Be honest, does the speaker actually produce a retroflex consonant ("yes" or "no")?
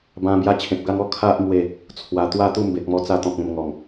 no